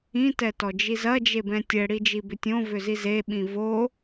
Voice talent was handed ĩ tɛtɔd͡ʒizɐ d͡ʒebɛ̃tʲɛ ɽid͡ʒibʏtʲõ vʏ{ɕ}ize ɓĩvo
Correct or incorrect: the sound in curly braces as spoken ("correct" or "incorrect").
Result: incorrect